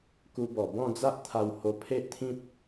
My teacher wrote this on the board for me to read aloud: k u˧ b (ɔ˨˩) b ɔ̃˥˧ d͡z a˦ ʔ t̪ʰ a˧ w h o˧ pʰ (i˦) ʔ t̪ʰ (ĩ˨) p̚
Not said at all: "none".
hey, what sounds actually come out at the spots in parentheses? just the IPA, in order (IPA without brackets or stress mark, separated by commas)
ɔ˨˩, e˦, ĩ˦